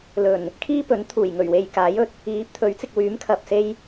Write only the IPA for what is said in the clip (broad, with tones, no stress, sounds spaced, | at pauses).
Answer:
l ɵ˨˩ n | kʰ iː˥ p ɵ˨˥ n t̪ʰ uː˨˩ j ŋ ɵ˨˩ ɥ w e˨ j k aː˨˥ j ɵ˨˥ t̚ | iː˨˥ p̚ t̪ʰ ɵ˨˥ ɥ t͡s ɪ˨ k̚ w yː˨˥ m kʰ ɐ˨ p̚ s e˧ j